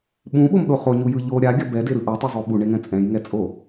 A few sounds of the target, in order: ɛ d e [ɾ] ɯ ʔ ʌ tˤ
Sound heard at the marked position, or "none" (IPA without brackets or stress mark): ɾ